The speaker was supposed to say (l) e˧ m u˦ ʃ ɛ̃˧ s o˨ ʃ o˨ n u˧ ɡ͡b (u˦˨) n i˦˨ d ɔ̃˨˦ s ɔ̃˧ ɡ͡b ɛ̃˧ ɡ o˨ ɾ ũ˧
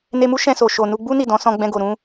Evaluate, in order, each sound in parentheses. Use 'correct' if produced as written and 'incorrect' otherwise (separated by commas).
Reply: incorrect, incorrect